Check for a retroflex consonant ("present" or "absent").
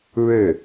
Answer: present